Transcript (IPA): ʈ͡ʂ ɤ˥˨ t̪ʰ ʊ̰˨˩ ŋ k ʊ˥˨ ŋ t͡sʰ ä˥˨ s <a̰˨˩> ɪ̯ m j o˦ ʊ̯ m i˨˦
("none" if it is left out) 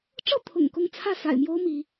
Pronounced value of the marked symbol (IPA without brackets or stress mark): a̰˨˩